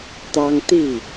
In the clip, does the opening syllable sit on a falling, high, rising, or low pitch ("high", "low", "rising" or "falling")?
high